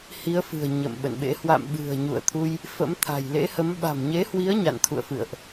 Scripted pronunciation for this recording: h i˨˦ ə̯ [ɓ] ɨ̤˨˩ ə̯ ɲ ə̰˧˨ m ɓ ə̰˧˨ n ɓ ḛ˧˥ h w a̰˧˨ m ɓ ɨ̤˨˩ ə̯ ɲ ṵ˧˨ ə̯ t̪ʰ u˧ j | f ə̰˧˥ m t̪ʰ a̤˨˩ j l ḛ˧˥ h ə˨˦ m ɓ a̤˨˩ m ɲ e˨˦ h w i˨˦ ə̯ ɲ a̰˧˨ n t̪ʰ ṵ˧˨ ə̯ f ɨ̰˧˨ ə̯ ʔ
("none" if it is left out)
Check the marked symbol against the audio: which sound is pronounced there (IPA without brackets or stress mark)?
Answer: f